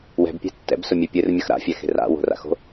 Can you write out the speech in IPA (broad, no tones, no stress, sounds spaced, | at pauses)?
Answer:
w ɛ̤ b pʲ e̤ tː ɛ̰ b s ʊ mʲ e pʲ ɨ r mʲ ʌ x ɾ a̰ fʲ ɛ x e̤ r a̰ w o̤ r a̰ x o̤